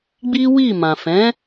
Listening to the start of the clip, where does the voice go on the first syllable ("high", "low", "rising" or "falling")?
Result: high